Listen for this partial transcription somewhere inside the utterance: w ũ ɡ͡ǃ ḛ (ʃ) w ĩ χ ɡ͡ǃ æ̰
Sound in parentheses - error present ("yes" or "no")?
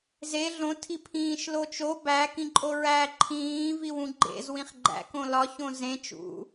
yes